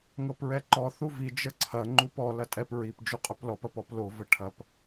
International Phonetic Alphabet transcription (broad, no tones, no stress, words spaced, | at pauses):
ŋɤpɹɛǃɔ θuvi d͡ʒəǀʰɐ ŋ͡ǃupɔ lɐtʼɛp ɹip d͡ʒuqʼɵplɔp ɐpɔplo vəʈʰɐp